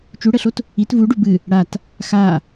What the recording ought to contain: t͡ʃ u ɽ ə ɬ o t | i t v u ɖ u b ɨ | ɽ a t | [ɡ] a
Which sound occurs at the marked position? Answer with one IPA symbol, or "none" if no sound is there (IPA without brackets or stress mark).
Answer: x